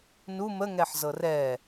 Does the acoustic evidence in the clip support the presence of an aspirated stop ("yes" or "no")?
no